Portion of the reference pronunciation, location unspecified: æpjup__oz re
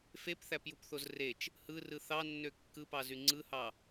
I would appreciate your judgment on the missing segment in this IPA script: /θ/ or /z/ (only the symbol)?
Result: θ